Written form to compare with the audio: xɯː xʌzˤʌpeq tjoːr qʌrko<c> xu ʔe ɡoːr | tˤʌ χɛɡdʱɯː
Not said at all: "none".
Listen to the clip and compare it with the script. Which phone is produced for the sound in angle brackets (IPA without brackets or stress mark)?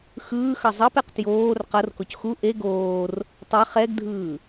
c